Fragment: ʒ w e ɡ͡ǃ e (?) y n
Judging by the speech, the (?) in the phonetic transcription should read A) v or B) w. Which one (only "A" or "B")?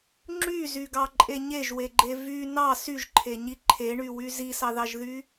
A